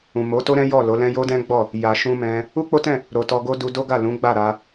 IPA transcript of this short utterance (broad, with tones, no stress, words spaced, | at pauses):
ũ˨mo˨˦to˦ɾɛ̃˦ jɔ˦˨ lo˨˦lɛ̃˦ jo˦dɛ̃˦ɡ͡bɔ˦˨ | ja˨ʃũ˧mɛ̃˧ | u˦k͡po˦tɛ̃˦˨ | ɾo˨ tɔ˧ɡo˦ du˧do˦ ɡa˦˨lũ˨˦ɡ͡ba˦˨ ɾa˧